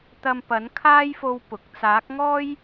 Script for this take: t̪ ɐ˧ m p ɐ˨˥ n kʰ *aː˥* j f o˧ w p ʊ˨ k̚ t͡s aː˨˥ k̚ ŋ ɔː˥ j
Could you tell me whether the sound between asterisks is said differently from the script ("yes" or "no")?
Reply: no